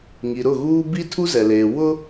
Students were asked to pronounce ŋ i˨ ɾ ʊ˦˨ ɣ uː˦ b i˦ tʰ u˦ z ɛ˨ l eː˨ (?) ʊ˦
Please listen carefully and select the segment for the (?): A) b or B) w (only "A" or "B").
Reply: B